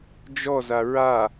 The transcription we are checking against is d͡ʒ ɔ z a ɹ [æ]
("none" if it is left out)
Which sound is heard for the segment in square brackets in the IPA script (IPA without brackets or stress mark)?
a